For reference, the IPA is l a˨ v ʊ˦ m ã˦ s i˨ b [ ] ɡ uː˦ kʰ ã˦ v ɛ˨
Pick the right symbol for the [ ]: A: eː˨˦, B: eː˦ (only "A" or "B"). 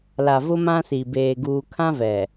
B